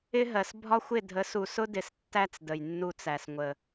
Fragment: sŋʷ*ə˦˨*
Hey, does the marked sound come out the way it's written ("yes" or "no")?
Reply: no